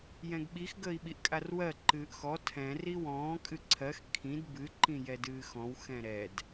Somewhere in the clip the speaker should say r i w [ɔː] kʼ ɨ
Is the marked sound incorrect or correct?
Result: incorrect